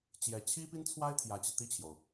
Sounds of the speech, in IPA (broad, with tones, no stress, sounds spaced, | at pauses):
t͡ɕ j ɛ˧˥ t͡ɕʰ i˥ p i˥ n t͡sʰ w a˥ ɪ̯ t̪ʰ j ä˧˥ t͡ɕ i˧ t̪ i˥˩ t͡ɕʰ j o˩ ʊ̯